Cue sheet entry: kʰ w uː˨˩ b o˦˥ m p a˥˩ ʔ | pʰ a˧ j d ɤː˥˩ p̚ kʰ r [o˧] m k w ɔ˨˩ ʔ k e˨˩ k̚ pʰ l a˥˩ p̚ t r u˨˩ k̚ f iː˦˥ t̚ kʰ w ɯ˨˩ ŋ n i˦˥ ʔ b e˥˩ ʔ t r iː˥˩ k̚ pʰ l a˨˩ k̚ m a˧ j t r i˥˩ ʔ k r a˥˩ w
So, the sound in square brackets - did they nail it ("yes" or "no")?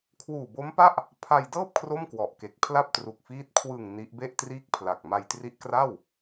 no